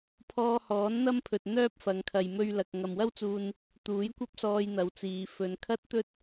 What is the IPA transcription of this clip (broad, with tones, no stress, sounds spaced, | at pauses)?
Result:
pʰ ɔː˧ h ɔː˨˥ n n̪ ɐ˥ m pʰ ɵ˨ t̚ n̪ œː˥ p̚ f ɐ˨˧ ŋ kʰ ɐ˨ j m ɵ˧ ɥ l ɐ˨ k̚ ŋ ɐ˨ m w ɐ˥ w t͡s uː˧ n | t̪ uː˨˥ j kʷ ɐ˥ p̚ s ɔː˧ j n̪ ɐ˨˧ w t͡s iː˨˧ f ɵ˨˧ n kʰ ɐ˥ t̚ t̪ ɵ˥ t̚